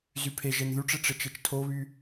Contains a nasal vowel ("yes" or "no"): no